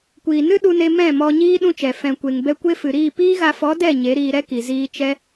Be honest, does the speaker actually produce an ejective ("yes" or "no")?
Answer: no